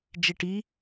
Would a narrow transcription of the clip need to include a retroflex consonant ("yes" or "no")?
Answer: yes